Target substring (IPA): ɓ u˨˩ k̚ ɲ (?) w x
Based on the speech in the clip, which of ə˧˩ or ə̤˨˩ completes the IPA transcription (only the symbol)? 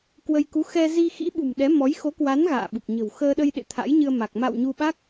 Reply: ə̤˨˩